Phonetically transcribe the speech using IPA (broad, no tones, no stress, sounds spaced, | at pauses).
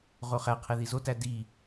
ʁ o χ æ qʰ e ð i z o t æ d i